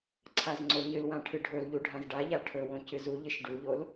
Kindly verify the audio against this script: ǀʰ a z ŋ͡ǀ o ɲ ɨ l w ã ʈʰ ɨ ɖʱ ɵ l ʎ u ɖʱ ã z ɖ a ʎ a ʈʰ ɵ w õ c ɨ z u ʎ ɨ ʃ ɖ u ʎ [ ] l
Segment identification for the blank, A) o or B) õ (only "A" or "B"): A